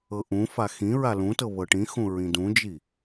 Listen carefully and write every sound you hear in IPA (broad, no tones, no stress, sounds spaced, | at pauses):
ɤ ʔ ũ f a x ĩ ɹ a l ũ t ɤ β ɤ ʈ ĩ x ũ ɹ ĩ d ũ d͡ʒ i